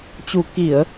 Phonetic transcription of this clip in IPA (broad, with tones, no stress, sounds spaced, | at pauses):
t͡ɕ u˨˩ k i˧˩˨ ə̯